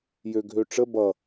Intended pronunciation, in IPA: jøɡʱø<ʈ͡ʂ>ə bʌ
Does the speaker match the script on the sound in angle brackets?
yes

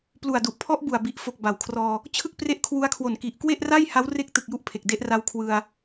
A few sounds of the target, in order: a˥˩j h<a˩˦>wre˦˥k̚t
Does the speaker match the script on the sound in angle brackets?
no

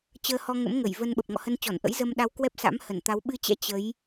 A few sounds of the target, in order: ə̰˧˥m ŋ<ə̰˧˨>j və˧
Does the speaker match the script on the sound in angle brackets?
no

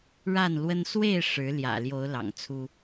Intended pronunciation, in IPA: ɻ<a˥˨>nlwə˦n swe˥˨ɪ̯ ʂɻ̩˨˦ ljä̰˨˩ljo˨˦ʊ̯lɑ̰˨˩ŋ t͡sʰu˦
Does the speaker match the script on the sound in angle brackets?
yes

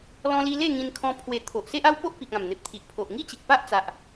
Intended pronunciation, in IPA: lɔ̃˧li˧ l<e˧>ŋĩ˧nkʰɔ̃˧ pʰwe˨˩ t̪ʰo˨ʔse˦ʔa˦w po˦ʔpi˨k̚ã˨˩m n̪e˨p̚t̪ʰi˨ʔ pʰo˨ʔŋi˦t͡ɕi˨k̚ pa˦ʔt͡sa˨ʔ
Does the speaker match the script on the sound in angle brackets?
no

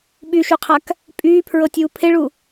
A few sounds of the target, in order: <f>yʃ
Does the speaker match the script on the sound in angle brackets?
no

